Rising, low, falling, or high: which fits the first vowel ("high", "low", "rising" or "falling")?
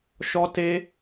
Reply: high